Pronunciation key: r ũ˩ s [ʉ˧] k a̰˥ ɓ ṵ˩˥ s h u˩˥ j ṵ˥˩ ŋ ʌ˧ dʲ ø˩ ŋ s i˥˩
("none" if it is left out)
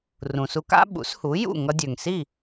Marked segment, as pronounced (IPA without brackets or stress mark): u˧